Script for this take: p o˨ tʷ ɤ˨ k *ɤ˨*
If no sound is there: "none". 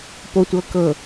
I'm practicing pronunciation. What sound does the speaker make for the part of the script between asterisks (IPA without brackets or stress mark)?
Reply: ɤ˨